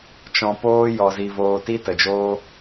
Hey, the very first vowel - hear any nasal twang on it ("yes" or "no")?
yes